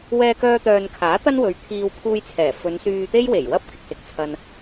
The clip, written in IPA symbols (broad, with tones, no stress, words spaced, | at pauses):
wɛː˧kœː˧t̪œː˨nkʰaː˨˥ t̪ɐ˥nwɵ˨˧ɥ t̪ʰiː˧w pʰuː˧jt͡sʰɛː˨˩fɵ˨˧n syː˧t̪e˥jwe˨˩j wɐ˥p̚ kɪ˨k̚sɪ˨k̚ t͡sʰɐ˧n